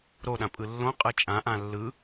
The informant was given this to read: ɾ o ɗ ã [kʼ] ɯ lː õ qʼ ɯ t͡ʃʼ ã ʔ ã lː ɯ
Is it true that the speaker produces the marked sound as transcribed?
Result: no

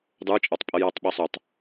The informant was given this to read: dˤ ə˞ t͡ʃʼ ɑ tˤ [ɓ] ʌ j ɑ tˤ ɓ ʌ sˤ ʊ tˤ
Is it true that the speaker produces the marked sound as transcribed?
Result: no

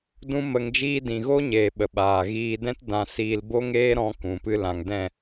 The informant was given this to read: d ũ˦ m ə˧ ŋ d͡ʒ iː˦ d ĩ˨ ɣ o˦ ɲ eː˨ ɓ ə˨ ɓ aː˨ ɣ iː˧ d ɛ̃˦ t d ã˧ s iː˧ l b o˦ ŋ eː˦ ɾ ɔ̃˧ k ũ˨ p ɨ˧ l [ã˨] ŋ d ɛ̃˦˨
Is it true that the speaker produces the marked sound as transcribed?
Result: yes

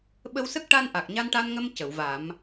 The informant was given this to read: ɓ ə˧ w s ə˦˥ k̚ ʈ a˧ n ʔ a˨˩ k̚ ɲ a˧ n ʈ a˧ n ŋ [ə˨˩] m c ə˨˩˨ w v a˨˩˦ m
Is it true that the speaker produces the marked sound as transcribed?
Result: no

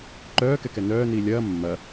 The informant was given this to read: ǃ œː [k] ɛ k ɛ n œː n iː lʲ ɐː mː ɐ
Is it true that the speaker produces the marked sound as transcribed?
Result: yes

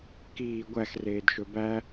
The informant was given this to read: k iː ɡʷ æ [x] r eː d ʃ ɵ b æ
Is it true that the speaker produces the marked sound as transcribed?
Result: yes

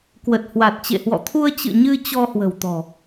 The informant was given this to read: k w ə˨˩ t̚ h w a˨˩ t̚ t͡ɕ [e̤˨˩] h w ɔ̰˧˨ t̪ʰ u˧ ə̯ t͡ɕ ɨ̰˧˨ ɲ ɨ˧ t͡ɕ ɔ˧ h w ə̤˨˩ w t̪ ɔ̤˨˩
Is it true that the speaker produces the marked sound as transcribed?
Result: no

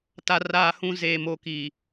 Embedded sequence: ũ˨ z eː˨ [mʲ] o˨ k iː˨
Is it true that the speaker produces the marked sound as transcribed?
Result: no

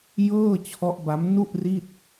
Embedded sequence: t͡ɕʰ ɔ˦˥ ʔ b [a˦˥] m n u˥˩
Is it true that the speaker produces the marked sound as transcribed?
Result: yes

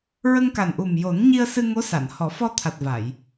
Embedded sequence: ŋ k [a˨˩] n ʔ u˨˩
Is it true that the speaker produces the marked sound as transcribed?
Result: yes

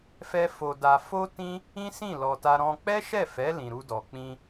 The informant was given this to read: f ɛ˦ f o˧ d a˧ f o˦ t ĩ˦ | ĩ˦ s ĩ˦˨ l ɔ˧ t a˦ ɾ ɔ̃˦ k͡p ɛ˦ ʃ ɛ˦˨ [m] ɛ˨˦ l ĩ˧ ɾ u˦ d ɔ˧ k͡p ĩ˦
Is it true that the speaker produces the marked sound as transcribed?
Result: no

